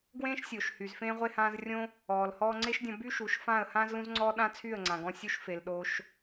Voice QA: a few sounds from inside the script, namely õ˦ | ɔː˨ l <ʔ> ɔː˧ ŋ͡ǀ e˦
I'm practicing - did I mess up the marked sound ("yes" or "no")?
yes